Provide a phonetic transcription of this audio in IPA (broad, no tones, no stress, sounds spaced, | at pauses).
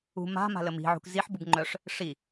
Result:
ṳ m a̤ m a̤ l ə m i̤ ʕ ṳ k z i ħ b u b ŋ͡ǃ œ ʂ | ʂ i